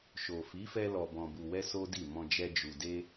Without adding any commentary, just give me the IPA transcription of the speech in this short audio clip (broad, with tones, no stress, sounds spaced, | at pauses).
ʃ o˨ f i˨˦ f ɛ˧ l ɔ˨ b ɔ̃˨ b u˨ w ɛ˧ s o˦ d i˦˨ m ɔ̃˧ d͡ʒ ɛ˧ d͡ʒ u˨ d e˧